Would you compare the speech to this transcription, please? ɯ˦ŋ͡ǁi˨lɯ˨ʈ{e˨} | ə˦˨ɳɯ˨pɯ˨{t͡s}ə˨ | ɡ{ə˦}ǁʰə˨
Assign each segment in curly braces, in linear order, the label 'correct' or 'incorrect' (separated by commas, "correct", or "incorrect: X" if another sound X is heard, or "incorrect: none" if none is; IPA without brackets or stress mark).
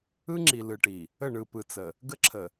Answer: incorrect: i˨, correct, correct